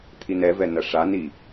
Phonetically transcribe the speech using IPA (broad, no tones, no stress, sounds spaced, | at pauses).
t̪ʰ i n ɛ v ɛ n ɐ ʂ a n i